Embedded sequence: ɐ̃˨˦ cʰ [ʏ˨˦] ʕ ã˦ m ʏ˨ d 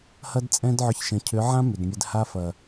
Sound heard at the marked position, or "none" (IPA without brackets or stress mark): ʏ˨˦